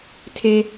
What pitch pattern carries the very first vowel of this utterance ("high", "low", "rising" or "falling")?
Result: high